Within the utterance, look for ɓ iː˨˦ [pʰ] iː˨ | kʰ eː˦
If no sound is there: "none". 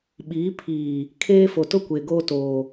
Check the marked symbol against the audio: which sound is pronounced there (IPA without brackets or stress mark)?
pʰ